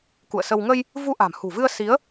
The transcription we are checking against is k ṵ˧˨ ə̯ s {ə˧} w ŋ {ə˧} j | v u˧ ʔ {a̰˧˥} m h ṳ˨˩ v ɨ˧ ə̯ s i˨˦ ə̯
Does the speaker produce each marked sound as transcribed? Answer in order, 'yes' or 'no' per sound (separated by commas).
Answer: yes, yes, no